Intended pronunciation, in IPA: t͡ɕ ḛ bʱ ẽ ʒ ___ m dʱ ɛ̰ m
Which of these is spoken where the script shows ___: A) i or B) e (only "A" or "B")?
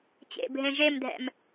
B